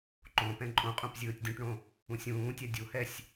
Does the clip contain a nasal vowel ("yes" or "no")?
yes